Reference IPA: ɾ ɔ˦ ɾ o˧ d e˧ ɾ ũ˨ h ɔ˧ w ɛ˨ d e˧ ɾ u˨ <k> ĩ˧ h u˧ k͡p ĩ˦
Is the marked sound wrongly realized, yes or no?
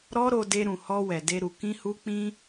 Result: no